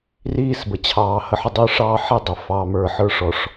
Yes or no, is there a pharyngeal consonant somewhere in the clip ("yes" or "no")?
yes